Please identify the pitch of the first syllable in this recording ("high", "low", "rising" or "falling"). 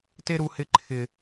high